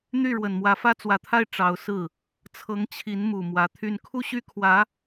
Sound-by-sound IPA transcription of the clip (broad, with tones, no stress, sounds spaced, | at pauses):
n̪ y˥˩ ɻ w ə˨˩ n m w ä˧˥ f ä˥ t͡s w ä˧˥ t̪ʰ a˥˩ ɪ̯ ʈ͡ʂ ɑ˧˥ ʊ̯ s ɹ̩˥˩ | t͡sʰ ɤ˧˥ ŋ t͡ɕʰ i˧˥ n m u˨˩ m w ä˧˥ t̪ʰ y˥˧ n kʰ u˥˧ ɕ y˥˩ kʰ w ä˧˥